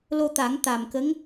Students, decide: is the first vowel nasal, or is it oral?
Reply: oral